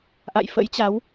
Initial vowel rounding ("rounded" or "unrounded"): unrounded